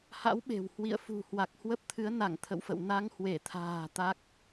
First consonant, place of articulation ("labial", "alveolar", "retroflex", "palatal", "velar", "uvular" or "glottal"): glottal